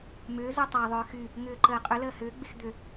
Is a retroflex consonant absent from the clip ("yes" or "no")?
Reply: yes